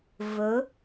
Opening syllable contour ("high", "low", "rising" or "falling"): rising